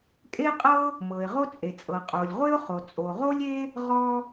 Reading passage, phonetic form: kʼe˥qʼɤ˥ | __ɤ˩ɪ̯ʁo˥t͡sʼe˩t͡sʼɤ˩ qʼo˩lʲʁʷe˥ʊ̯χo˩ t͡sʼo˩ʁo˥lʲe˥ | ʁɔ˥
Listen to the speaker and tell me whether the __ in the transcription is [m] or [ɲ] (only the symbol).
m